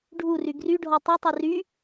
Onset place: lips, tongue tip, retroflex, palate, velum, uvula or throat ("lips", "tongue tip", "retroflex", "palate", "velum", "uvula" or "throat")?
retroflex